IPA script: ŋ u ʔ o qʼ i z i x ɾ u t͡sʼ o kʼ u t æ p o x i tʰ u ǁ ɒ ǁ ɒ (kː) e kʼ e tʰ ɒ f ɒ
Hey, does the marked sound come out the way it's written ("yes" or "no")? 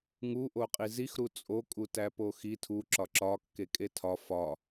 yes